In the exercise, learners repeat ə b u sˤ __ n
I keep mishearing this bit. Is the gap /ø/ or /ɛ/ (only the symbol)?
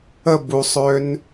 ø